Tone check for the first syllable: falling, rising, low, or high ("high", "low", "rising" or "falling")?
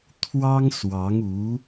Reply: high